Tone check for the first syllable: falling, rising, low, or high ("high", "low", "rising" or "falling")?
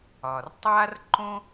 low